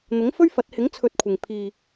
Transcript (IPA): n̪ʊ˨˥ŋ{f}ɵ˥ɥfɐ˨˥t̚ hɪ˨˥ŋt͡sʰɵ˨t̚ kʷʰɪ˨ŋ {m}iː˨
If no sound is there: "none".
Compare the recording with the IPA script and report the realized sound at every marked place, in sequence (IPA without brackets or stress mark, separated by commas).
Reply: f, pʰ